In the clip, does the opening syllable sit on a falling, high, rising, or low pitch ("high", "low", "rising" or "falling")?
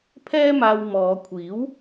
high